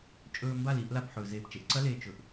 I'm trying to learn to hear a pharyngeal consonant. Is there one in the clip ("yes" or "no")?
yes